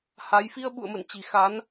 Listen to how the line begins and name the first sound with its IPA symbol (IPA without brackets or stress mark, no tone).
h